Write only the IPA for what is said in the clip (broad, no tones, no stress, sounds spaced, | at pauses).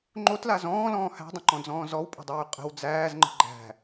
ŋ͡ǃ o t l a z ɔ̃ː l ɔ̃ː h æ̤ dˤ ə̃ ǃ ɔ̃ d͡z ɔ̃ː z ɔ w pʼ ə̤ dˤ yː qʼ ə̤ w d͡z æː z ŋ͡ǃ ə̤ ɡ͡ǃ æ̤